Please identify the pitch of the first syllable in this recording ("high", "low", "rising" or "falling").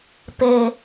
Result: low